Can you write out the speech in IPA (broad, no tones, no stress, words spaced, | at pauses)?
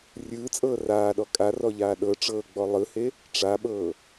rʲɯːt͡sʼɤː raːɗɔ kʼarɔʎaː ɗɤʈ͡ʂɤːɡ͡bɔ lˠɯhe | ʈ͡ʂaɓɤː